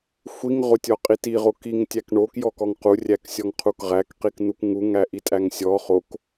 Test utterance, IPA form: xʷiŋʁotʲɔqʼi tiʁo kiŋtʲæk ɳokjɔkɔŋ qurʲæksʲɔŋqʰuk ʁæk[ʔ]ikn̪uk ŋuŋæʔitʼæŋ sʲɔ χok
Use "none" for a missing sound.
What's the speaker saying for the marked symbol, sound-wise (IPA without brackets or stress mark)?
q